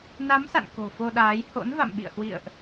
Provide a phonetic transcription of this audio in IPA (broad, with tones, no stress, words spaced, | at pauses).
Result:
na˨˦msa̰˧˨n ko̤˨˩fo˧ɗaː˨˦j ho̰˧˥n va̰˧˨mɓḭ˧˨ə̯hwḭ˧˨ə̯ʔ